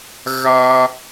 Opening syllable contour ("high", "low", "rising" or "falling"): high